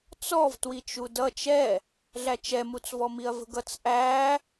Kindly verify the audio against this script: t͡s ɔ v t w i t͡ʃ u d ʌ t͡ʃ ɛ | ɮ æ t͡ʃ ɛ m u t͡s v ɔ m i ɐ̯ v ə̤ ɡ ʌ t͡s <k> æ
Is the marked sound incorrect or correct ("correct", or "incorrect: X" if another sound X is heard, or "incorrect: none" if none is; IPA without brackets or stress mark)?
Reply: incorrect: ʔ